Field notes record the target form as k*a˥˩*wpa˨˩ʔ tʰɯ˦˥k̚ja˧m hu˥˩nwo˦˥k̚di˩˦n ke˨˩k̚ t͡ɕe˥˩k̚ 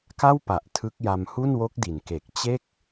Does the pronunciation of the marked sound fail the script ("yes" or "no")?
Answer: no